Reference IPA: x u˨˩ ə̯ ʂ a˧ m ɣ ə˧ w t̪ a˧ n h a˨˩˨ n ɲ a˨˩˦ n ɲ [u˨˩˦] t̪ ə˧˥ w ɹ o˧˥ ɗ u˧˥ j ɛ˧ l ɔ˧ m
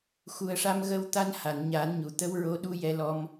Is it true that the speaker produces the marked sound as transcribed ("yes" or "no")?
no